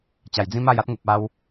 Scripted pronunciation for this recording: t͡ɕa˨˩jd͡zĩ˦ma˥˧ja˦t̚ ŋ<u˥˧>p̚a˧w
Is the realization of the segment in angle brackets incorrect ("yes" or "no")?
yes